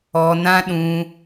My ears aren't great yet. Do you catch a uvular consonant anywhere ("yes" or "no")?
no